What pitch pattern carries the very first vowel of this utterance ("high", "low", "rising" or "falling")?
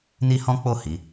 high